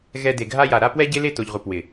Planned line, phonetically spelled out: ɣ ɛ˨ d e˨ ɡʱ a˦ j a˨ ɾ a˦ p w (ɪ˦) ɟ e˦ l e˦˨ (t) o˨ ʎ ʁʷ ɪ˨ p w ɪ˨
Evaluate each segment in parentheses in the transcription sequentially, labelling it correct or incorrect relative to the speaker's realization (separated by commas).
incorrect, correct